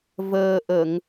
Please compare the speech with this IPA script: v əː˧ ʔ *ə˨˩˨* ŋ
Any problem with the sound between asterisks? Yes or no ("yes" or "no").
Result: no